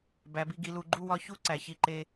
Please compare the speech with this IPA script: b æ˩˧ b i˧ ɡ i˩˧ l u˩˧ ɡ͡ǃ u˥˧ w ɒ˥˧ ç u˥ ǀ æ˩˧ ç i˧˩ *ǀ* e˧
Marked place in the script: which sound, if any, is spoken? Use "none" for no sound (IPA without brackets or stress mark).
ǃ